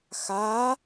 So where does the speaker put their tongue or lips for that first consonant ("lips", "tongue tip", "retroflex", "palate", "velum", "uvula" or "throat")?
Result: velum